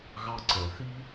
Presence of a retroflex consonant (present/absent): absent